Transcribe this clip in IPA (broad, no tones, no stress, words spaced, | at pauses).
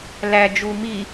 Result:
læd͡ʒu mi